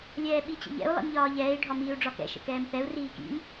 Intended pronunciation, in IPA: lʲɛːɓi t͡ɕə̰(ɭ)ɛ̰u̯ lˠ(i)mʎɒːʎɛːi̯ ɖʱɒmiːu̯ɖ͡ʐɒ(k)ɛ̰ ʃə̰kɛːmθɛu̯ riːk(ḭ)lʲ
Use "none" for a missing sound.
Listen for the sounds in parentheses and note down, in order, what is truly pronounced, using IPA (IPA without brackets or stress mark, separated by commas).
ʎ, ḭ, k, ḭ